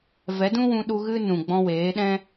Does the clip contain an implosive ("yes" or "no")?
yes